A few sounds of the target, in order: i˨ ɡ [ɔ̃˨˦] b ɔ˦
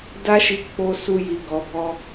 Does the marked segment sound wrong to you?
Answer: yes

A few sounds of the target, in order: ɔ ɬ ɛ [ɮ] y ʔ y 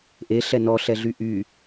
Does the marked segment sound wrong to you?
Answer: no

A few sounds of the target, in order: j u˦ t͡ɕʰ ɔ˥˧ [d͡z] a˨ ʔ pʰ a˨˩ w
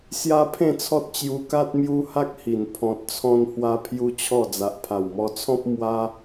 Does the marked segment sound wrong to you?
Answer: no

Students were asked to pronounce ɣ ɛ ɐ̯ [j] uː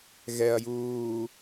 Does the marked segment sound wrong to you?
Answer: no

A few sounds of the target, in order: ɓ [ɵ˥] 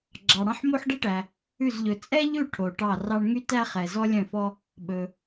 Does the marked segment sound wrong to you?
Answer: yes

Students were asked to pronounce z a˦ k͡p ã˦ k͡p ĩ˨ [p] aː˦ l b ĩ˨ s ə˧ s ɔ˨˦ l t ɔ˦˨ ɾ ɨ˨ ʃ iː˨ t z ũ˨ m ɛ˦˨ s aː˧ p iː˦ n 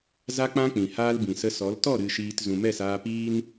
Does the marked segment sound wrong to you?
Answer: yes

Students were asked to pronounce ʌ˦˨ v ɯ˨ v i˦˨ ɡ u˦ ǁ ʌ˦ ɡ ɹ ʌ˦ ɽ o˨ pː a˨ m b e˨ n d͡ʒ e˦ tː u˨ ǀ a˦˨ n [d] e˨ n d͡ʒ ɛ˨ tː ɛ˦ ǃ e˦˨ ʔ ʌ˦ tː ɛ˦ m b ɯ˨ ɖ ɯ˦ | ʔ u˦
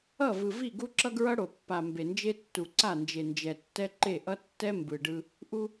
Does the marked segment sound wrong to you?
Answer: yes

